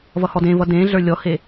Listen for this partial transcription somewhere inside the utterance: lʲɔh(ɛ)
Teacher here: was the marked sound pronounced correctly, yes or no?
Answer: no